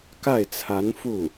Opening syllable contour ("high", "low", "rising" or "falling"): falling